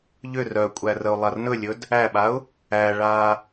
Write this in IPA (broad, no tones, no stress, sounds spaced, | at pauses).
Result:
ʎ ʏ r œ kʷʼ æ r ə ʊ̯ lˠ a r n ɵ lʲ ɵ d | æ ɓ a ʊ̯ | æ ɭ a